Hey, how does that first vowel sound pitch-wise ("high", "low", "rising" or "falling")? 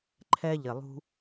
high